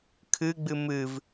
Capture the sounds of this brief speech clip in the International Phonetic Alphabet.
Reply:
kʰɨɡ͡bɨ mɨv

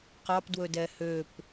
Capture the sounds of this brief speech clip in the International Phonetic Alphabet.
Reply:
qɑp dwɵdɛhøp

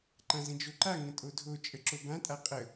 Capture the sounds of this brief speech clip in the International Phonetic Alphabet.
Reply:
ǃãzə̃d͡ʒoǃa ŋə̃tʼodʱo t͡ʃʼəǁobãtʼa qʼə

